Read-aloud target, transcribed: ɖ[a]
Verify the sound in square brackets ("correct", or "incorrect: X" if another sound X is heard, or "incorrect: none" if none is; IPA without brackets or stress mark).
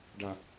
correct